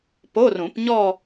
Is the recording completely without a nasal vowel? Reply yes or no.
no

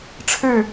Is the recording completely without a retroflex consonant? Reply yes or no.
no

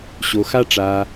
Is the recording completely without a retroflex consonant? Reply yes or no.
no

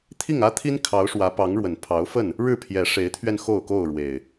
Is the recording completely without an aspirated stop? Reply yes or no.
no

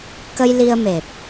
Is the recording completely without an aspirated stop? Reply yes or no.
yes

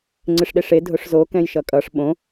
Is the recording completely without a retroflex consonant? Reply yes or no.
no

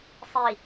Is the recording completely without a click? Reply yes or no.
yes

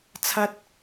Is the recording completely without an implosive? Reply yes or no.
yes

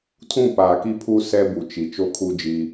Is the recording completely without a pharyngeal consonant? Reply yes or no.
yes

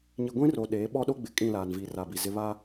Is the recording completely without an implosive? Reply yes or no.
no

